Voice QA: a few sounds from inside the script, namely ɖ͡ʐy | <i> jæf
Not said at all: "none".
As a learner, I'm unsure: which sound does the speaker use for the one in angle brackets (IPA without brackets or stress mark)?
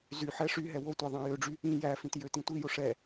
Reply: ĩ